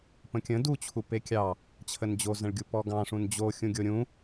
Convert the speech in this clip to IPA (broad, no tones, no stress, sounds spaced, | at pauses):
p ə̃ kʲ ə̃ d u t͡ɕʰ u p e kʲ ɑ | t͡ɕʰ ə n d͡ʑ o z ə̃ ɭ ɡʲ u p ɔ ɡ ɑ̃ ʂ ũ n d͡ʑ o xʲ ũ ɡʲ o ɾʲ ũ